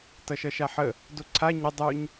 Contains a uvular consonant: no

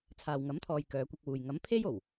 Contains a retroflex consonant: no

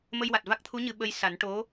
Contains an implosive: yes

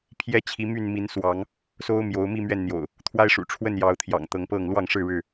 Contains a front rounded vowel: yes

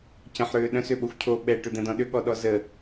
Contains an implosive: yes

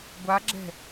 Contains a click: yes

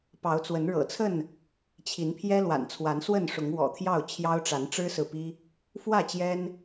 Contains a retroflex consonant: yes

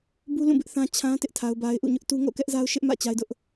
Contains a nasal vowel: yes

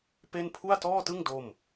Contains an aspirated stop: yes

